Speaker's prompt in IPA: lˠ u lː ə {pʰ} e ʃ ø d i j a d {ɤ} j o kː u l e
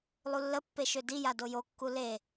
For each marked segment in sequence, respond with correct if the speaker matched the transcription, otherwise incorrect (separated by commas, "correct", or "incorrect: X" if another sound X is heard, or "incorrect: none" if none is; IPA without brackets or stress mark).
incorrect: pː, incorrect: o